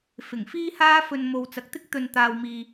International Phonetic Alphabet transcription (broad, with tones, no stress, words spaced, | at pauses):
fɪ˨˩ŋfiː˥haː˥fɵ˧n mo˨wt͡sɐ˨k̚ t̪ɪ˥k̚t̪ɵ˨n t̪aː˨wmiː˨